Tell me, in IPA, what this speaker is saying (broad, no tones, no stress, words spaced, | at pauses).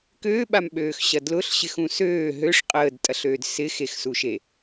køːɓamɓøːxɕɐ dlʊɬɕɪxũ søː ɦøʂ qʼəːdtʼɐɬøːd sɪxexsuʃe